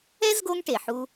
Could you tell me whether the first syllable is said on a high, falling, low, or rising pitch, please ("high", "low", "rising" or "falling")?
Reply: high